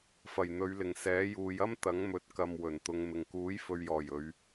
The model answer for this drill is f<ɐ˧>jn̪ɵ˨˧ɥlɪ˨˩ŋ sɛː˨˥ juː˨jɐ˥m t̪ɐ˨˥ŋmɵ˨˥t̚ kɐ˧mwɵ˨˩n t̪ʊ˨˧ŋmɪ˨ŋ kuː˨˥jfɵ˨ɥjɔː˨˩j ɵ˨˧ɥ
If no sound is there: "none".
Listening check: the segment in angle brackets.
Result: ɐ˨˩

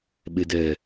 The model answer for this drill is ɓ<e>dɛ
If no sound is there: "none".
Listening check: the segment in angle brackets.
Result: e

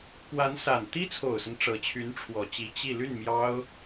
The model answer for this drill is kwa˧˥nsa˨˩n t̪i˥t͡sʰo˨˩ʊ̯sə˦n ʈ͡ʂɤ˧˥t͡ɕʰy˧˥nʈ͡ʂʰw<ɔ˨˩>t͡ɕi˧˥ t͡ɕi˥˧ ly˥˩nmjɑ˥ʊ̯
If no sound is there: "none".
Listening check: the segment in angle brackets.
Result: ɔ˨˩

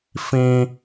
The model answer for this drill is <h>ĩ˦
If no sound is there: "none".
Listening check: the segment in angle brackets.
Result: f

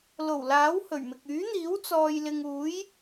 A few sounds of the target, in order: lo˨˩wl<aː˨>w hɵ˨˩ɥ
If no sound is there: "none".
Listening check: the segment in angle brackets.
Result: aː˨˥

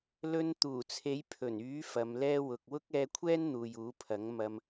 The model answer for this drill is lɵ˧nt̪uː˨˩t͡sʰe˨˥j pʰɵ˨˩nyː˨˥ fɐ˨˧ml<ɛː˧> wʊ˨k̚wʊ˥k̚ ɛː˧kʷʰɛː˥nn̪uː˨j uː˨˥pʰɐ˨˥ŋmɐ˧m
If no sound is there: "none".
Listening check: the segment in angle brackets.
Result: ɛː˥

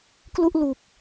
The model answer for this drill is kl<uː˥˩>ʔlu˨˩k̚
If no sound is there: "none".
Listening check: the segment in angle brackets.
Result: u˥˩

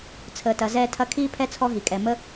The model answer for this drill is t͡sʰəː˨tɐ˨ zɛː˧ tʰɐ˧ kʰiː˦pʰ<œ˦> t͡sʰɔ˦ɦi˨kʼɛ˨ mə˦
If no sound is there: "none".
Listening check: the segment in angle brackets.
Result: ɛ˦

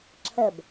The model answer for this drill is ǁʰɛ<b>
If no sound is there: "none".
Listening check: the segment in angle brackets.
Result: b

